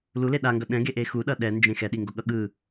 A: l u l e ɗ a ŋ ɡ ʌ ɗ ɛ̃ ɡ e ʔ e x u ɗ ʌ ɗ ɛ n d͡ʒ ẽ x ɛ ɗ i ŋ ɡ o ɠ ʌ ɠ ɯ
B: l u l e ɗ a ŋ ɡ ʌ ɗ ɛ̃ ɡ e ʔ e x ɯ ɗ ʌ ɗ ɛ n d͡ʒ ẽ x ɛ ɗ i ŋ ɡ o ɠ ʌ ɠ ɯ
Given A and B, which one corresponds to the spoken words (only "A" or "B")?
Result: A